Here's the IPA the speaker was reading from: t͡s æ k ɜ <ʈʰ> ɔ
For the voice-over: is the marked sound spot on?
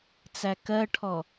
yes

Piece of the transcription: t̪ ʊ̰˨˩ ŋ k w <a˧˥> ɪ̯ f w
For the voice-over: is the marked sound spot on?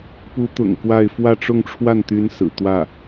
no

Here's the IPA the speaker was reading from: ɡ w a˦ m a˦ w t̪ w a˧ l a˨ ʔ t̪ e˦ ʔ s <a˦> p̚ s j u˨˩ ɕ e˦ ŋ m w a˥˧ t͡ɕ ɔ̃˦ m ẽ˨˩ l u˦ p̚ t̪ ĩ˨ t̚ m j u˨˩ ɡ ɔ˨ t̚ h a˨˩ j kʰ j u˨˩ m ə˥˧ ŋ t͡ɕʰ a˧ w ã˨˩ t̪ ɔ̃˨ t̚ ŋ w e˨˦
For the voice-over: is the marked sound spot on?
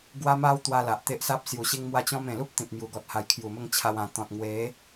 yes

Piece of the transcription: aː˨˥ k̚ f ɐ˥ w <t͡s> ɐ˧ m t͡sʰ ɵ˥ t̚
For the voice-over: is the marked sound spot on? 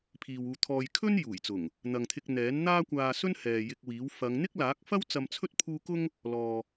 yes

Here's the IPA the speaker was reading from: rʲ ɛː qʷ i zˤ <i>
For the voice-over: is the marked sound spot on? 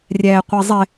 no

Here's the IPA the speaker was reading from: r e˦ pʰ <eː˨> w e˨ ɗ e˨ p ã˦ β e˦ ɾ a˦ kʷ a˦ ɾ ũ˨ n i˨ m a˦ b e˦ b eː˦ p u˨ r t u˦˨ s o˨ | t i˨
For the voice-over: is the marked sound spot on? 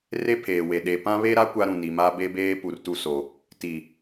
yes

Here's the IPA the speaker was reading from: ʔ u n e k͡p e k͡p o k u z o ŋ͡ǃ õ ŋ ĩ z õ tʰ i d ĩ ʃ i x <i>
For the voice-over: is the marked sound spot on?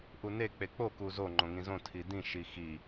yes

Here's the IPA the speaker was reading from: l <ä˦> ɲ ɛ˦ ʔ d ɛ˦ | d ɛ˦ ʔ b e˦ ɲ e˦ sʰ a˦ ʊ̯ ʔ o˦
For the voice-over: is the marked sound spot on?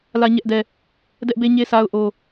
yes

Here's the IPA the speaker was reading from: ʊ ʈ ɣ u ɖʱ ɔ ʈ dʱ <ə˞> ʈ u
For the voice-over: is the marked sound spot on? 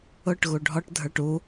yes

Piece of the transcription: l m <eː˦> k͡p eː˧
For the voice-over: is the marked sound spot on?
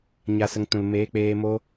no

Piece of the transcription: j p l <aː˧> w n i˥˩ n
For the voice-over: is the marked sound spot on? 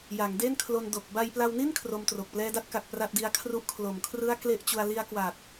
no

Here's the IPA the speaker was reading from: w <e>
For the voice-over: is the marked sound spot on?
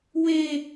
yes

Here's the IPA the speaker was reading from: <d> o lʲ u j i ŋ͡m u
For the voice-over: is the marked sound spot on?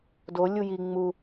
yes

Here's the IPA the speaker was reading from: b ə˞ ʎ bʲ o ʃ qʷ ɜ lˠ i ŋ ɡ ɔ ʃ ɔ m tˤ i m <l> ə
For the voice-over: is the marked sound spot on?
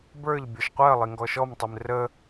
no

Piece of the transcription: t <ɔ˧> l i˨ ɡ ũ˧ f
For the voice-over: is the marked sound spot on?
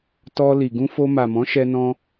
yes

